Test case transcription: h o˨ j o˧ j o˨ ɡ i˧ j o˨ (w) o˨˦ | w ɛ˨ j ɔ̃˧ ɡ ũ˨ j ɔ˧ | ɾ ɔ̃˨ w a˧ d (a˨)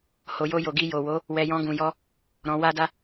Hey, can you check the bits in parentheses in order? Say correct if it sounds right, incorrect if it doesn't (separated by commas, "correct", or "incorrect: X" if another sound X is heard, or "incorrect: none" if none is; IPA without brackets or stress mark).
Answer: correct, incorrect: a˧